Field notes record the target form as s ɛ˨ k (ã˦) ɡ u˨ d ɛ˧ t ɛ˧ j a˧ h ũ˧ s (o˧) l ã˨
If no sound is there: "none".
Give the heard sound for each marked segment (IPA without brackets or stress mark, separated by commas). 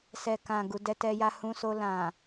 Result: ã˨, o˧